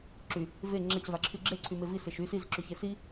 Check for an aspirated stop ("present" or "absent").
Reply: present